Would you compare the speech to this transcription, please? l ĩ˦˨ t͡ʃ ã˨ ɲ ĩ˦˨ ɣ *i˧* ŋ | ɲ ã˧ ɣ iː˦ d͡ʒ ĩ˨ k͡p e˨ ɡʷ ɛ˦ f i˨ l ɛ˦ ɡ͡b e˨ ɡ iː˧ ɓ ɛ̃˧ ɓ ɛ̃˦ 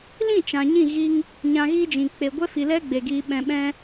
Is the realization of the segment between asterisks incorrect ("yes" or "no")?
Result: no